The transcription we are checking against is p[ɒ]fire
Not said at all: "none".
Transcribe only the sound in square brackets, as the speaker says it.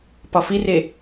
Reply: ɒ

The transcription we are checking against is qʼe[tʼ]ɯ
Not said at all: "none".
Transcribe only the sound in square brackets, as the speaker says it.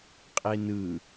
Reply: n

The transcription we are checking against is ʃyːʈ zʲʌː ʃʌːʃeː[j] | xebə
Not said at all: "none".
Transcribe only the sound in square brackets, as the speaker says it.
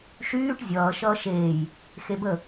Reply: j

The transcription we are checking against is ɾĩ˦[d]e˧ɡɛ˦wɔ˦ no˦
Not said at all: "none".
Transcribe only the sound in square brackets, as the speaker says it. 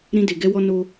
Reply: d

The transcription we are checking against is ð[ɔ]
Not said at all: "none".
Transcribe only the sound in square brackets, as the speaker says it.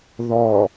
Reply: ɔ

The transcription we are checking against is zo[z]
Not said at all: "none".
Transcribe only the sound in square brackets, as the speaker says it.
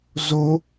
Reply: none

